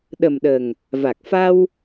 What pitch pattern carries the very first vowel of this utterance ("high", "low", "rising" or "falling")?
low